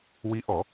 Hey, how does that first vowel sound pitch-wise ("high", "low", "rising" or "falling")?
rising